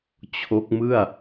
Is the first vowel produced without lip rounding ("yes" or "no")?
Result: no